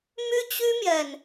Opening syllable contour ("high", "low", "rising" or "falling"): high